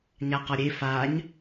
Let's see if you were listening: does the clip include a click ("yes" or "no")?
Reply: no